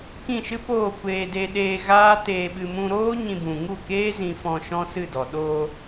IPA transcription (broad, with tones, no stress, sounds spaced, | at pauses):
k ĩ˦˨ ʃ ɨ˦ p oː˦˨ kʷ eː˧ d e˧ ɗ eː˧ ɣ aː˦ t eː˧ ɓ ɨ˧ m ũ˧ ɾ oː˦ ɲ ĩ˧ b ũ˨ ŋ u˦˨ k eː˦ z ĩ˧ f ɔ̃˧ ʃ ɔ̃˦ s ɨ˦˨ d ɔ˨ ɗ oː˧